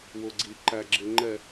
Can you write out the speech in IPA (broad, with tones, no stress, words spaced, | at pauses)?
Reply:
wʊ˨ɡ͡ǀi˨ ǃæ˨ɡ͡ǁɪ˨ ŋ͡ǃɛ˨